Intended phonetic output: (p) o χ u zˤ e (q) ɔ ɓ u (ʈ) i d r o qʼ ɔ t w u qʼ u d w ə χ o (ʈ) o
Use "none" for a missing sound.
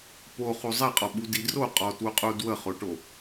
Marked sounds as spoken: p, qʼ, d, ʈ

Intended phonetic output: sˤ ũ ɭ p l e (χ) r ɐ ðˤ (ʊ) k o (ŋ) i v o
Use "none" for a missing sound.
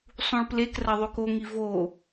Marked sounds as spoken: k, ʉ, ŋ

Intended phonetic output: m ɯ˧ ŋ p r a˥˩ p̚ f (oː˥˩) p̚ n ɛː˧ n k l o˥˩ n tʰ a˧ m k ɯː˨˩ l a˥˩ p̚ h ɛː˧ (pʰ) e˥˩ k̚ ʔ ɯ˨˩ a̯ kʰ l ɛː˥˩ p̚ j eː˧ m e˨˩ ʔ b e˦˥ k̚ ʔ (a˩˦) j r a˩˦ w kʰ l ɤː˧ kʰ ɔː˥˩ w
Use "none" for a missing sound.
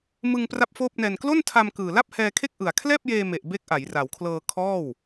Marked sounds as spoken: oː˥˩, kʰ, a˩˦

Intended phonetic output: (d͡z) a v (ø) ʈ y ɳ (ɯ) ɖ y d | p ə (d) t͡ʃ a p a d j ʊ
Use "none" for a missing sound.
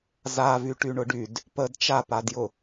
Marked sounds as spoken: z, y, ʊ, d

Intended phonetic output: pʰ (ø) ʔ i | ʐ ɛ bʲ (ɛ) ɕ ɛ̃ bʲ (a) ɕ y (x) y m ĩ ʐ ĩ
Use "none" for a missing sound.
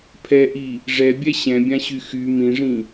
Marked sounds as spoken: ɛ, ɛ, ã, x

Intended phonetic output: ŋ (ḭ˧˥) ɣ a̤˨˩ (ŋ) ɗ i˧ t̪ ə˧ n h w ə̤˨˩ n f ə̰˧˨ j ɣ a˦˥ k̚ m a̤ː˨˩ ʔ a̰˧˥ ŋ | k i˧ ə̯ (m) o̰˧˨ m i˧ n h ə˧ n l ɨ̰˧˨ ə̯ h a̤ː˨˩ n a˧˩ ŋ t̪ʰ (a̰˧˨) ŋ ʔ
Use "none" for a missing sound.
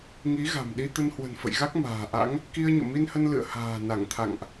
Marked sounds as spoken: i˨˦, m, ɲ, a̰˧˨

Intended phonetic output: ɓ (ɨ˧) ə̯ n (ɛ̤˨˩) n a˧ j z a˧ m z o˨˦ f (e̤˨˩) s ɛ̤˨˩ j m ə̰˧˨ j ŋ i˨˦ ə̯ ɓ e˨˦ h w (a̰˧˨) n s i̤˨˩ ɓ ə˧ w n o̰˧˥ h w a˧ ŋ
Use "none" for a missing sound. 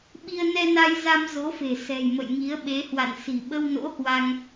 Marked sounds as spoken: i˧, ɛ˧, e̤˨˩, a̰˧˨

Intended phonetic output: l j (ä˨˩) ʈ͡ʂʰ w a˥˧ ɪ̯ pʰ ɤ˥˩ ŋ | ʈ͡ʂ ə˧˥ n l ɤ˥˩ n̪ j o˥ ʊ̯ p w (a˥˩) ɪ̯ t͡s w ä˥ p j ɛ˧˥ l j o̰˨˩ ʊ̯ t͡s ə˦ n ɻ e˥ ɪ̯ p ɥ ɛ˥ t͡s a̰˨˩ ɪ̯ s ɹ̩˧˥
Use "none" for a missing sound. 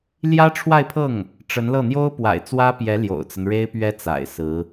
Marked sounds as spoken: ä˥, a̰˨˩

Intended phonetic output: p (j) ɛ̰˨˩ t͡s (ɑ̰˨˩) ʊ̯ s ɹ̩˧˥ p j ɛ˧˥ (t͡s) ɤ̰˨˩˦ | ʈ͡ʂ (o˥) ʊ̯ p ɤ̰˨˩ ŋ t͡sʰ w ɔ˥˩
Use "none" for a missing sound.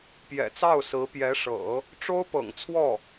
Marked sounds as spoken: j, ɑ˥˩, ʂ, o˥

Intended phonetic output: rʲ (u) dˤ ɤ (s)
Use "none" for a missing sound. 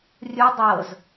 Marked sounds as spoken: u, z

